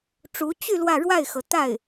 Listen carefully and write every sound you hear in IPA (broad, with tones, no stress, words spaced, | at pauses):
ʈ͡ʂu˧˥ t͡ɕy˥˧ lwä˥˧ ɻwa˥˩ɪ̯xɤ˩t̪a˥˩ɪ̯